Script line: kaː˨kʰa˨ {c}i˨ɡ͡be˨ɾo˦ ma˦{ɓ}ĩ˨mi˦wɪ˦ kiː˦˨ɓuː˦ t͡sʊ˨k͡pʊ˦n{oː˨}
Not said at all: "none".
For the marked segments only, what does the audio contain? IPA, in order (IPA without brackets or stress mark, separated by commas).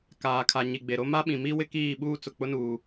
ɲ, ɓ, uː˨